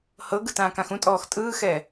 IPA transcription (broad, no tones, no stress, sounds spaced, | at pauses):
h ɤ ɡ ɯ t ãː k ã x ũ tʼ ɔː x tʼ ɯː x ɛ